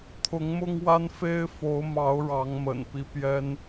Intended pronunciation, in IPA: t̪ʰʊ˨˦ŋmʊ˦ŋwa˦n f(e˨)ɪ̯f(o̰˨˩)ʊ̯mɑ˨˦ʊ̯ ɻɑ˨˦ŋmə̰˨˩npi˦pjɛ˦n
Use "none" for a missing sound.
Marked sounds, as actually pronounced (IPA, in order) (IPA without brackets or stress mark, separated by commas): e˦, o˨˦